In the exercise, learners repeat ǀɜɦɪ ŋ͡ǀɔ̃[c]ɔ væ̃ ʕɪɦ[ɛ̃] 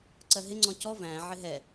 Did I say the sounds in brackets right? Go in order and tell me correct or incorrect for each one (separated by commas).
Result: correct, incorrect